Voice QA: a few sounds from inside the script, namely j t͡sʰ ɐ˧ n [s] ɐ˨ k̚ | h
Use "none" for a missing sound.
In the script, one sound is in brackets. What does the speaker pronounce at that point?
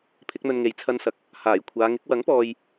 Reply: s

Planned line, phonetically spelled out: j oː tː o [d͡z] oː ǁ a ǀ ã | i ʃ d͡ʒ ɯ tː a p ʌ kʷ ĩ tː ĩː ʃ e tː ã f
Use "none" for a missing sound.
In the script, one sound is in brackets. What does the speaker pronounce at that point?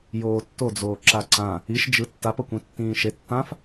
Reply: d͡z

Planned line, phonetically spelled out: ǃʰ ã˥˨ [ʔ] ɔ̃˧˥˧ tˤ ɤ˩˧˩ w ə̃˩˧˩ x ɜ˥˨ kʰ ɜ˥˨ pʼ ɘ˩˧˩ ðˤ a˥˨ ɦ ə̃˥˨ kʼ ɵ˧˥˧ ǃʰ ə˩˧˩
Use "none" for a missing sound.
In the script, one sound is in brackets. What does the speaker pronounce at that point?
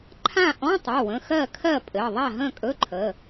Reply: ʔ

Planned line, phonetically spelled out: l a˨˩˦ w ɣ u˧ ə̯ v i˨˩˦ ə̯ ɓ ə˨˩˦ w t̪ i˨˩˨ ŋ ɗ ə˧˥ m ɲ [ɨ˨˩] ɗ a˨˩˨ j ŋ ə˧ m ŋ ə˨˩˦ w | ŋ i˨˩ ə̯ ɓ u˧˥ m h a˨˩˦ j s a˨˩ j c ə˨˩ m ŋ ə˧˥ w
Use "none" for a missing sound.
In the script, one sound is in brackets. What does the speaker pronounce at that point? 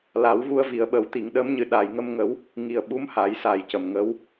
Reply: ɨ˨˩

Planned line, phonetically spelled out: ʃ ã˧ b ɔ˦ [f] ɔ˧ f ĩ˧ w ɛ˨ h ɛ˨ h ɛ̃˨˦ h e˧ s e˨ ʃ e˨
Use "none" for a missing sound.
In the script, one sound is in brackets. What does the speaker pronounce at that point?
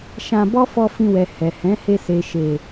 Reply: f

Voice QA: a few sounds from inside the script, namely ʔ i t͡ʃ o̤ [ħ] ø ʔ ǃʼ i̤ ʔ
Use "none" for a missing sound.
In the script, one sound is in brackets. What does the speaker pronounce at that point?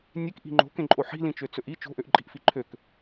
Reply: ʔ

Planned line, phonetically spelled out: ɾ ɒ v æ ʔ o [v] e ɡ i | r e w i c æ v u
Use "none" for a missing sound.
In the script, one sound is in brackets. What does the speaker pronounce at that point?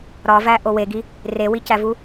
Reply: w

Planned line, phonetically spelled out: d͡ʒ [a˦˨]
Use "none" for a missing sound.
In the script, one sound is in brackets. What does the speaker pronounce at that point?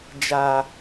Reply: a˨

